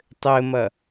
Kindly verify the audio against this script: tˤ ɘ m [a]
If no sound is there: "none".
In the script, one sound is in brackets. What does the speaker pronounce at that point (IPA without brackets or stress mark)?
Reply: ɐ